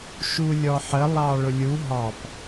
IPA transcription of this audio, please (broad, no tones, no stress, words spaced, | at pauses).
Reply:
ʃulʲɔħə lˠɑɭʊlʲu ɦɑp